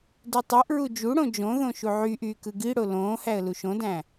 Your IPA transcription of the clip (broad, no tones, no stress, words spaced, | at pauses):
dutˤuʔɹu d͡ʒuɽõ d͡ʒõðõ ʃuʕyʔyː kɯɡiɽo lõːhæə̯ luʃõdæ̃ː